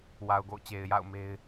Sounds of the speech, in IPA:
w a˨ ʊ̯ ɡ o̰˦˨ ʊ̯ t͡ɕ e˨ ɪ̯ j a̰˦˨ ʊ̯ m e˦ ɪ̯

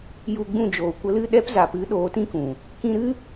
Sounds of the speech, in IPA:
j u˧ ɡ͡b ũ˦˨ d͡ʒ oː˨ kʷ ə˧ l ɨ˦˨ ɗ ɛ˦ p z a˨ p ɨ˨˦ ɗ oː˨˦ t ĩ˦ k ũ˨ | k ĩ˧ ɾ ɨ˦

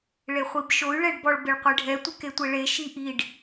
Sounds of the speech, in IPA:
ɭ e χʷ i b ʃ o y̯ ɭ ɛ ɖ b ɔ ɭ b ɪ ɭ qʷ e ɖʱ ɛ tʷ ɪ k e tʷ e ɭ e ʃ i ʔ i ɖ

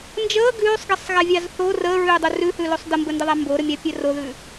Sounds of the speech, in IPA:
n d͡ʒ əː ɡ ʉː sˤ ɡ ɛ sˤ ɣ æ vʲ ɑ z θ o r əː ɹ ʉː dˤ u r ʉ h ʉ l o sˤ d ə m b ə n d ə ðˤ æ m b o ɾ ə mʲ ɑ pʲ ɛ r o ð ʉ

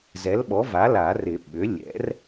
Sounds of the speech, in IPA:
z ɛ˩˥ l ɓ ɔ˩˥ v a˩˥ l a˨˩˦ r ɪ˨˩˦ ɓ ʏ˩˥ lʲ ɛ̰˩˥ r

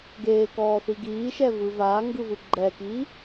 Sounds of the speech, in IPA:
ɡ eː k ɔː θ i ɡ iː ʃ ɛ v ɯ v aː ŋ ɡ ɯ v ɯ ɡ͡ǃ ɛ k iː

